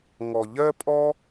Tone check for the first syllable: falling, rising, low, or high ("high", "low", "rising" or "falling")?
low